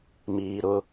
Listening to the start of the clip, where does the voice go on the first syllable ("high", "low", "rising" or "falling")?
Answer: low